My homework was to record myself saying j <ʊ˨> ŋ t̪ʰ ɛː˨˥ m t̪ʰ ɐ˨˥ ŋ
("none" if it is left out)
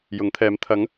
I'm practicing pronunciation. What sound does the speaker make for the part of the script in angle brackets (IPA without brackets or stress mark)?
ʊ˨˥